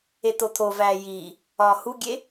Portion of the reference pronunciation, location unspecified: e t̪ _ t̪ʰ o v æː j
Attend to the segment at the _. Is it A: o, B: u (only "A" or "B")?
A